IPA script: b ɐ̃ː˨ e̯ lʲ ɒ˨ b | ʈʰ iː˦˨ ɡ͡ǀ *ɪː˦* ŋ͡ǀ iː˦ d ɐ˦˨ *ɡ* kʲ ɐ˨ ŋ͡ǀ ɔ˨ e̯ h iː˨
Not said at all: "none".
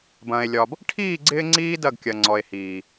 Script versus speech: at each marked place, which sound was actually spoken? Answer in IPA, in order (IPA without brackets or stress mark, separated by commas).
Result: ɪː˦, ɡ